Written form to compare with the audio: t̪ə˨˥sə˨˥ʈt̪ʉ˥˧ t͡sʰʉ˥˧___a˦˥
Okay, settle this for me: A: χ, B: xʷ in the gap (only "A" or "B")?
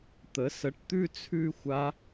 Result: B